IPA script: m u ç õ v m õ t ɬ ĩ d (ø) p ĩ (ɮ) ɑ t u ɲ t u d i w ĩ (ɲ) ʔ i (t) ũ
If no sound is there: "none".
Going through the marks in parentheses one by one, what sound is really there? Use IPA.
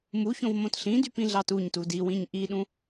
y, ɮ, ɲ, ɗ

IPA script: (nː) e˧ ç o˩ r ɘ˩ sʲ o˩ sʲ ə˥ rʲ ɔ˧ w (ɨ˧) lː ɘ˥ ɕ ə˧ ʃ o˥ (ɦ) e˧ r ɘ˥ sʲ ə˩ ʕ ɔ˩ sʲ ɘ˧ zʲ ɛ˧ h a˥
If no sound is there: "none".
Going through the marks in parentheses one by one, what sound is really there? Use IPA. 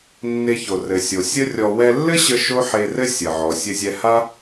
nː, ɛ˧, ħ

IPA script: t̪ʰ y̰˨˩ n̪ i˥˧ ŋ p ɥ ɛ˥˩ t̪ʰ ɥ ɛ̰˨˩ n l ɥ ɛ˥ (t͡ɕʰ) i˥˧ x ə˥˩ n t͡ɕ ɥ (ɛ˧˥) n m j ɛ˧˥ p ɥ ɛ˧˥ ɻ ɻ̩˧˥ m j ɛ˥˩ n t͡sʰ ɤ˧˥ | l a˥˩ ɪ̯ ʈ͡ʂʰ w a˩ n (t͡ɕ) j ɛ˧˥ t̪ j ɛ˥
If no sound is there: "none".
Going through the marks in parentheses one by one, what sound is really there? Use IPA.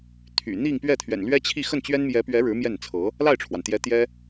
t͡ɕʰ, ɛ˥, t̪

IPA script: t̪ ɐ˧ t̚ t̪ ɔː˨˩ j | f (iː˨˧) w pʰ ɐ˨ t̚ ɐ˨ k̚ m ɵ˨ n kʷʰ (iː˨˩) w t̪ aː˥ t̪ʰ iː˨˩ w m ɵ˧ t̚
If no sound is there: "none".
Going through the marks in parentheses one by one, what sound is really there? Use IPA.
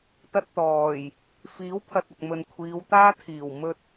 iː˨˥, iː˨˧

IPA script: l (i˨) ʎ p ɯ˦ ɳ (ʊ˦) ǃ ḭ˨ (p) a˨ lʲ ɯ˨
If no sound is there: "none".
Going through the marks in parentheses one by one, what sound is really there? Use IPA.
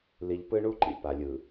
i˨, u˦, p

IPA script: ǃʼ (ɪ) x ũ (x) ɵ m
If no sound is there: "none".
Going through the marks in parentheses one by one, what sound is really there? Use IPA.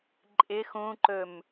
ɪ, ǃ

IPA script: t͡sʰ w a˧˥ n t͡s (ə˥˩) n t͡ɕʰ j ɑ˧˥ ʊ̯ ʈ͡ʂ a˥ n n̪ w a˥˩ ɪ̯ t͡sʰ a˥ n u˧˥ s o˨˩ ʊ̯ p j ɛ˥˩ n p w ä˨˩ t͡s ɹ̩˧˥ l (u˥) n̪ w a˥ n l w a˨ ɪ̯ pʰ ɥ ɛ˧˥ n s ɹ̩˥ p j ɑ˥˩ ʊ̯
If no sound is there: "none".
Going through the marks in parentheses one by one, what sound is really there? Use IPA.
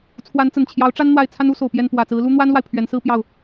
ə˨˩, u˥

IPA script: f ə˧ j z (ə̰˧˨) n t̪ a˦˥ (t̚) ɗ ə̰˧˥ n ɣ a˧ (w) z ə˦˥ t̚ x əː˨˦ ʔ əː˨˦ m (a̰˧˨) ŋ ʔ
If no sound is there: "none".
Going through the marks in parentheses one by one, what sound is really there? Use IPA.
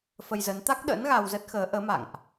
ə˨˦, k̚, w, a̰˧˨

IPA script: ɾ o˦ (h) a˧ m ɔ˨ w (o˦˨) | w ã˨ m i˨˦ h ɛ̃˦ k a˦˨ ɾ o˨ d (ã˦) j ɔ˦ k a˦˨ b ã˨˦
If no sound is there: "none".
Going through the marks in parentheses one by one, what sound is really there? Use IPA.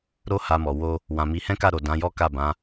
h, o˧, ã˨˦

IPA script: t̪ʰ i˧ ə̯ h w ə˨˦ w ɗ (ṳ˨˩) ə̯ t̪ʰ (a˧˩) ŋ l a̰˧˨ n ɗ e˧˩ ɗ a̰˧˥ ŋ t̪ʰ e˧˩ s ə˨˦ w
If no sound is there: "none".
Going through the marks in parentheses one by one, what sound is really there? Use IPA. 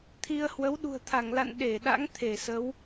ṳ˨˩, a˧˩

